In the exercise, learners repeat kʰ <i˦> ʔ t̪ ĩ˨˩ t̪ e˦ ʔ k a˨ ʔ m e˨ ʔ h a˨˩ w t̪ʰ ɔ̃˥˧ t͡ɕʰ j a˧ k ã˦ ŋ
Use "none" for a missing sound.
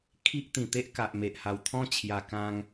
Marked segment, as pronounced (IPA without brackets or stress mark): i˦